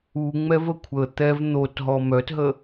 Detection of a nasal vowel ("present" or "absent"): absent